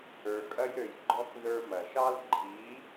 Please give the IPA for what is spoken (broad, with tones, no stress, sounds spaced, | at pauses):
ə˞˨ kʼ ɐ˧ j ɾ ø˨ j ɡ͡ǃ ɔ˧ k ð ə˞˧ m ɐ˨ ʃ ɑ˦ l ɡ͡ǃ i˨˦